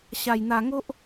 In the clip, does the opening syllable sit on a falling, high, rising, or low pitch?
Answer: low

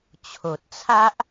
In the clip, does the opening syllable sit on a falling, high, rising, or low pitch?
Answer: low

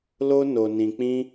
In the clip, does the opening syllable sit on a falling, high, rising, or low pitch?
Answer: high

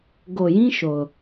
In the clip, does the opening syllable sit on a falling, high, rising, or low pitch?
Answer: low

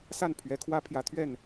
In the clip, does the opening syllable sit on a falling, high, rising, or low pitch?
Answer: falling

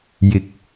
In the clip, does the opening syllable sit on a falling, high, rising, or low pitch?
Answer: low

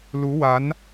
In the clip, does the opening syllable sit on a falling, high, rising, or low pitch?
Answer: rising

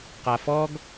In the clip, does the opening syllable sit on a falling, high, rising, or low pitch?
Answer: low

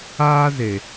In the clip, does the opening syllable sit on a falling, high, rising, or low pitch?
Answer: high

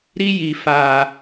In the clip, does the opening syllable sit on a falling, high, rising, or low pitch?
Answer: high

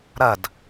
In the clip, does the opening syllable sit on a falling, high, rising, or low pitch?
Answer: falling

